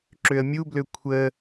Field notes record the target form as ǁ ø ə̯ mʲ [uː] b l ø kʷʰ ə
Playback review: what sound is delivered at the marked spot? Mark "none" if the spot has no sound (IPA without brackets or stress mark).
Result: u